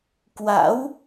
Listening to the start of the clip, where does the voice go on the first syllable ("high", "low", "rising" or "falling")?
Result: rising